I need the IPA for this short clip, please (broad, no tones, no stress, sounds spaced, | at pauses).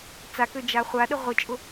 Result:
t͡s a k ø d͡ʒ a χʷ a ɗ ə ʁʷ ɪ t͡ʃʼ ʊ